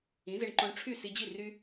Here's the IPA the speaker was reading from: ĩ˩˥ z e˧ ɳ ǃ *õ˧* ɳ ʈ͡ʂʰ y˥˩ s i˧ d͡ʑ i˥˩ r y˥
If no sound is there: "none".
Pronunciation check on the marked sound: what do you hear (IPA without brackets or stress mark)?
õ˧